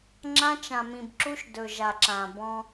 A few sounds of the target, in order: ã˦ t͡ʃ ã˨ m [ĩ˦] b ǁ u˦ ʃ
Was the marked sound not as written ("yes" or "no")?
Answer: yes